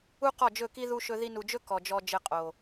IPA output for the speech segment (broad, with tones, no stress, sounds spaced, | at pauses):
u˦ q ɔ˦˨ d͡ʒ ɵ˦˨ k i˦ ð u˦ ʃ ɵ˦ ð i˧ n u˨ d͡ʒ ɵ˦ k ɔ˨ d͡ʒ ɔ˧ d͡ʒ ɘ˧ qʼ o˨